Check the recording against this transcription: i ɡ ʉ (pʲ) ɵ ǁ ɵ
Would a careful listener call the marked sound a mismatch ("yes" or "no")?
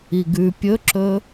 no